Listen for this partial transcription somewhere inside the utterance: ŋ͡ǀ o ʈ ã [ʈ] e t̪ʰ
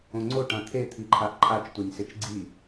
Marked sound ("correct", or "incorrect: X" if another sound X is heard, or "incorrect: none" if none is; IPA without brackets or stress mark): incorrect: t̪ʰ